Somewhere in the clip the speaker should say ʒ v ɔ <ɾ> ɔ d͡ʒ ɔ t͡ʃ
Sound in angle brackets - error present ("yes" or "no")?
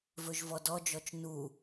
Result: yes